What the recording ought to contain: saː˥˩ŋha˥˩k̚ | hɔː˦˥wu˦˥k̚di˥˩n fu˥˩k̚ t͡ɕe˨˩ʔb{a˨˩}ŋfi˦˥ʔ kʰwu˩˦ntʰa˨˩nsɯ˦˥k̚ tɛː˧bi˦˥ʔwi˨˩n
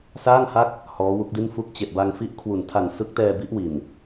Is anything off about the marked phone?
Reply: yes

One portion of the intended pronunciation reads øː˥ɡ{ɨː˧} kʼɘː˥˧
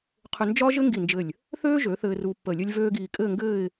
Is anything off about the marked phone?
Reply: yes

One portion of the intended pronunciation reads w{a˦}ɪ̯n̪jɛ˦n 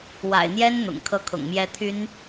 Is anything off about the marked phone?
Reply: yes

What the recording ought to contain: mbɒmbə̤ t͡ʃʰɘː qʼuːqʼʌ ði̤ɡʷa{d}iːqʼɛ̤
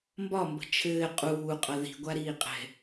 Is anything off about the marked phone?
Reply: yes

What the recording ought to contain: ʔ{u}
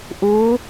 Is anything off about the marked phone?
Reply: no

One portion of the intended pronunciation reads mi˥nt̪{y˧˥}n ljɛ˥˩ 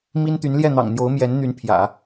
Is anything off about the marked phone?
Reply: no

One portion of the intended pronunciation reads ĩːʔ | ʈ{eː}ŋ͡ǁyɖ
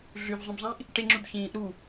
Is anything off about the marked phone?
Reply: yes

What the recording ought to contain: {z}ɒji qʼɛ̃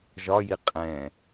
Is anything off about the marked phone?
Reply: yes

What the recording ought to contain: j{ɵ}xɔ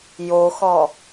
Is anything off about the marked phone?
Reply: yes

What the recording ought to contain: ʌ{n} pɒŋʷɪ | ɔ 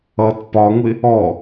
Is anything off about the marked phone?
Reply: yes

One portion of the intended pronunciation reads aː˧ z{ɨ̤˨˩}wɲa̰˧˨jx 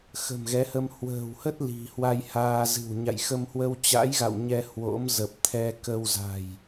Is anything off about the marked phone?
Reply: no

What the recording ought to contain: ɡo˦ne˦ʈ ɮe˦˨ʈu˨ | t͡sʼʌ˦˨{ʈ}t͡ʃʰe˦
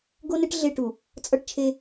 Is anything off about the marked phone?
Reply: no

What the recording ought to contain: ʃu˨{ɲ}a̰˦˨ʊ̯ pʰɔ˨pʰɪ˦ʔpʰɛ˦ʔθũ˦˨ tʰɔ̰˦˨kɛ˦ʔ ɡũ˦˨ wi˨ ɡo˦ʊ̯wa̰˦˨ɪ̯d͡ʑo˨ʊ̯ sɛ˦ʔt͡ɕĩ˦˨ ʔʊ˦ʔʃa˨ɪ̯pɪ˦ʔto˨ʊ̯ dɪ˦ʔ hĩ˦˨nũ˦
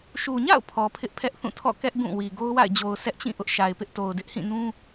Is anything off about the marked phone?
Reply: no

